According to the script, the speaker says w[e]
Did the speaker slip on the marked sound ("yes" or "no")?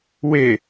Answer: no